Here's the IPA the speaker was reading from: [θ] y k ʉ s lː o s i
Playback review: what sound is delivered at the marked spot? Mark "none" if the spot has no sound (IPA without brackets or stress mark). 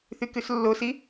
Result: θ